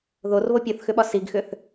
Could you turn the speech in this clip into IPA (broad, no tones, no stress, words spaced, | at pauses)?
ðorβo pʲoθxʏɓɒ siɡxʏθ